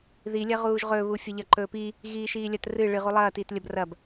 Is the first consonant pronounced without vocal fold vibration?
no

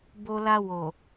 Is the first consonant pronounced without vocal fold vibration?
no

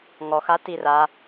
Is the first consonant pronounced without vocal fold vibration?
no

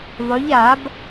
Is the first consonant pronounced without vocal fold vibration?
no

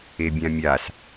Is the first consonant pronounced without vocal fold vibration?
no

